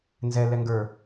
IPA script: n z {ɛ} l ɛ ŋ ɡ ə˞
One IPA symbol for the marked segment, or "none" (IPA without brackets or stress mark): ɛ